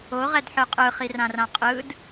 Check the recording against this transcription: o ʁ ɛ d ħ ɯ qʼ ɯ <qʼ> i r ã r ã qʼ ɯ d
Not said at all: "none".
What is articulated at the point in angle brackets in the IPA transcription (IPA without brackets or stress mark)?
χ